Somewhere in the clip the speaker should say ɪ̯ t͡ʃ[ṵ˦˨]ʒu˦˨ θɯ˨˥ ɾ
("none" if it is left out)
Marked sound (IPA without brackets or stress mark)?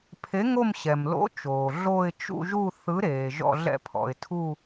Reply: ṵ˦˨